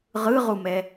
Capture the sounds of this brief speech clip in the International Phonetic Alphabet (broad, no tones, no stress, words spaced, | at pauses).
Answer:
ʁɯʁumɛ